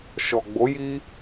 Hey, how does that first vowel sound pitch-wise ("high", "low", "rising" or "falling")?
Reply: low